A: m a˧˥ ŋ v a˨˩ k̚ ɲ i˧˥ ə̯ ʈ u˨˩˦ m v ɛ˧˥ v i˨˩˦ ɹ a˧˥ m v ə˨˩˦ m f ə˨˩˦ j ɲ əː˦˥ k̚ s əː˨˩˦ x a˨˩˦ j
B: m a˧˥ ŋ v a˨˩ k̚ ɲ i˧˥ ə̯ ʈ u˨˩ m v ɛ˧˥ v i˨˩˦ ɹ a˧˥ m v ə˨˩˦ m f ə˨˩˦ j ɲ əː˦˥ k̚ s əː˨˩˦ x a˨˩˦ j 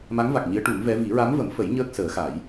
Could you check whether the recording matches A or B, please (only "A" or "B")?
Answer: A